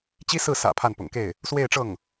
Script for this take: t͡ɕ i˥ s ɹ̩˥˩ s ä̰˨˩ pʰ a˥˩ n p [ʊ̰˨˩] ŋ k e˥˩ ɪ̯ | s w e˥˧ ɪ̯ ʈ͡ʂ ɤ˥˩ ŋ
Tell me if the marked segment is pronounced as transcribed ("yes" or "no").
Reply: yes